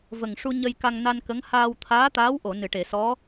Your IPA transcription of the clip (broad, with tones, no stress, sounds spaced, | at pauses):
v ə˨˩ ŋ ʂ u˧ ɲ ə˧ j k a˧ ŋ n a˧ n k ə˧˥ ŋ h aː˧ w t̪ʰ aː˧˥ t̪ aː˧˥ w ʔ o˨˩˨ n ɨ˨˩˨ ʈ e˨˩˨ s ɔ˧˥